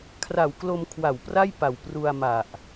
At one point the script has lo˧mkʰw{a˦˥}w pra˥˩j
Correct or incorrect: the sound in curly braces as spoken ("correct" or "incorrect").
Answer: incorrect